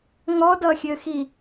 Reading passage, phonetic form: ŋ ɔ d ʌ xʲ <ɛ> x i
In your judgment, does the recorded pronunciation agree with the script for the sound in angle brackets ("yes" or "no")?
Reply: no